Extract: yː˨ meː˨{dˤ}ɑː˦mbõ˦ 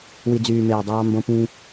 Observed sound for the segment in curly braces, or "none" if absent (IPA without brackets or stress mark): dˤ